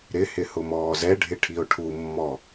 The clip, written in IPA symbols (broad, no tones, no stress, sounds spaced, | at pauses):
ɾ ɪ h ɪ h ʊ m ɔː z ɛ ɖʱ ɪ ʈʰ i o̯ ʈʰ u mː ɔ